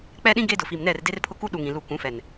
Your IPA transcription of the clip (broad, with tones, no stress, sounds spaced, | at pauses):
k͡p ɛ˦ ɗ ĩ˦ ɡ e˦ d ʊ˨ f i˨ m n ɛ˦˨ r d e˦ r pʰ ʊ˦ k u˦ ɗ u˨ ŋ ĩ˨ l u˨ k ũ˨˦ f ɛ˨ n